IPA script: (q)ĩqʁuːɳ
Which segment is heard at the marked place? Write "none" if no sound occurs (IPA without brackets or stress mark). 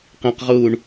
q